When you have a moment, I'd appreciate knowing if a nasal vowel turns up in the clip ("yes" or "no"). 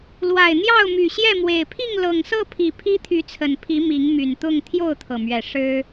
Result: no